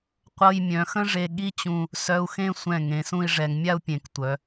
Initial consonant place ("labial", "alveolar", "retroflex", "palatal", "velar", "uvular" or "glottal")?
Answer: uvular